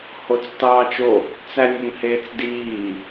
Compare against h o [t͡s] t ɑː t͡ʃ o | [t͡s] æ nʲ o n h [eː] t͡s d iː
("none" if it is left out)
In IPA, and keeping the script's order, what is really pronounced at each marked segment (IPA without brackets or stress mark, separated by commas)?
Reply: t͡s, t͡s, eː